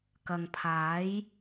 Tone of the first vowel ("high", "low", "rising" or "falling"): low